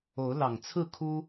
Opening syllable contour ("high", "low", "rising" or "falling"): rising